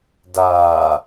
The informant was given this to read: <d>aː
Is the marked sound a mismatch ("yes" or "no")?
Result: no